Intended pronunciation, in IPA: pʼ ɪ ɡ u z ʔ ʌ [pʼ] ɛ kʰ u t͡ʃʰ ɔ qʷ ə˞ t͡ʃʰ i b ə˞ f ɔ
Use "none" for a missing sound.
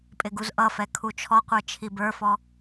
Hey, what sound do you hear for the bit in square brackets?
f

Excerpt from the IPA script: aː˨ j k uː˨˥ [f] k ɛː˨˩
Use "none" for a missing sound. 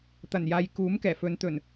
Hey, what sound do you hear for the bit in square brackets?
m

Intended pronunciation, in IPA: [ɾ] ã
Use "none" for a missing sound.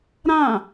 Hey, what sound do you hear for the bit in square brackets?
ɾ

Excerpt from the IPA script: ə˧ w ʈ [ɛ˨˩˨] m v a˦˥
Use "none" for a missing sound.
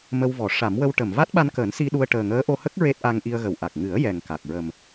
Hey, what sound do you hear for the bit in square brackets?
ə˨˩˨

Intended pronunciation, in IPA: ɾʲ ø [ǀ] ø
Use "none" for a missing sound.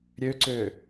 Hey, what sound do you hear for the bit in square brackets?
ǀ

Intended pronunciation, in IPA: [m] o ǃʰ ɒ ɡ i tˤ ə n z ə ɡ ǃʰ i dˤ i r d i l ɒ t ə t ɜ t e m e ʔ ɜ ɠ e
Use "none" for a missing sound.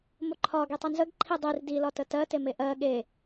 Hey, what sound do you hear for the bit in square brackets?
m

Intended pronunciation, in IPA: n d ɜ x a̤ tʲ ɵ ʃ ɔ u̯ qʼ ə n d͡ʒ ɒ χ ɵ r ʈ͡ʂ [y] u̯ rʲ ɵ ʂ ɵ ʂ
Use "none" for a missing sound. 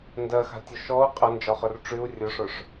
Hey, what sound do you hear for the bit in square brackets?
y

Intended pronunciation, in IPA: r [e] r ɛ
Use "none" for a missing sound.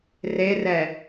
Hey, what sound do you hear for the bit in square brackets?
e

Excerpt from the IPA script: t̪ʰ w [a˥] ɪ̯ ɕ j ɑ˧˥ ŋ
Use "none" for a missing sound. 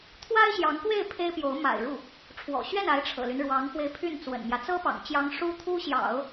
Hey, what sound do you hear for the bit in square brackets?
a˥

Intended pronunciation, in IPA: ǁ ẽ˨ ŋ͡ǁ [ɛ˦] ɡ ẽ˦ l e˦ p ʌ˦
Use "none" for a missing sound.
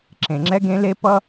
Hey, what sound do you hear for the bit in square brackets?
ɛ˦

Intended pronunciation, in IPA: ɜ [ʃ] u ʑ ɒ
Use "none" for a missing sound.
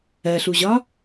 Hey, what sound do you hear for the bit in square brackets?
ɬ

